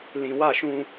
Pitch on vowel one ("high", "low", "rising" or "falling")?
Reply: low